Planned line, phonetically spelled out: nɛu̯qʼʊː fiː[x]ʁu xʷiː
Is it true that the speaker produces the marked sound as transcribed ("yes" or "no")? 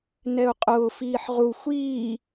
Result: no